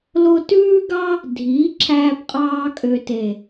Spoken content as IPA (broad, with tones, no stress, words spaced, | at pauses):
lo˧tʉː˦ɡɑ˦ | dʱiː˨˦ǁʰæː˧pqʼɑː˧ kʼø˨te˨